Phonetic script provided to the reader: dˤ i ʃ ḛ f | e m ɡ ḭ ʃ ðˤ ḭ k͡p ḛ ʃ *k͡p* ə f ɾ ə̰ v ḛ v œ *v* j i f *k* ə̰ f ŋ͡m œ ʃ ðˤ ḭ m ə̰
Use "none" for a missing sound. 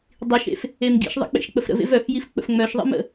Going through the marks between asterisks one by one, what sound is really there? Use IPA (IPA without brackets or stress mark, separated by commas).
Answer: k͡p, f, k͡p